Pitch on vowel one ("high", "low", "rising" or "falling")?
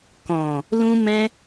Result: low